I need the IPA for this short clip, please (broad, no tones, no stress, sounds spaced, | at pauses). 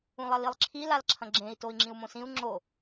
ũ lˠ ɐ l i lˠ ǁʰ i l a l ǁʰ ɐ̃ ɡ͡ǁ ẽ i̯ t o i̯ ŋ͡ǁ ĩ u̯ m õ s ĩ u̯ ŋ͡ǁ o